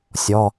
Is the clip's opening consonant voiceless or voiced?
voiceless